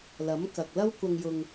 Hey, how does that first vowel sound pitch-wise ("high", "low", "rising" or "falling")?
rising